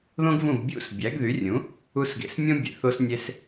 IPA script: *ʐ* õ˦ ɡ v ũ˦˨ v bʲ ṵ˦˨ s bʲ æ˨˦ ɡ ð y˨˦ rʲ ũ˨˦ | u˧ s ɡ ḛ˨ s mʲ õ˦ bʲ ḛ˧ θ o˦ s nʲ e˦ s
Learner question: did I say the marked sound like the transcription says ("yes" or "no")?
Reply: no